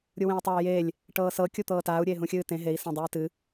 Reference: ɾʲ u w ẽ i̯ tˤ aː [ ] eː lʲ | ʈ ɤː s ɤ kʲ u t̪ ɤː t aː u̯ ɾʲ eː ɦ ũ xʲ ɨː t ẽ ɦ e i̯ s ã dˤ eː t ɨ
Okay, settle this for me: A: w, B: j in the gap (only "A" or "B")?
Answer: B